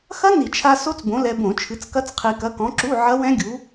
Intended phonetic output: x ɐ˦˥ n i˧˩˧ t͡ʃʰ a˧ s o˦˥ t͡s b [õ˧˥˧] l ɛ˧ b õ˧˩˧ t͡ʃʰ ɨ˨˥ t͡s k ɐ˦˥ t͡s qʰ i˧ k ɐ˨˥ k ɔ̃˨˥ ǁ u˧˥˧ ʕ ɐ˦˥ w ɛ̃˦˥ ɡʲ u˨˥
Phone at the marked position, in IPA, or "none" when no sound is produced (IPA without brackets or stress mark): õ˨˥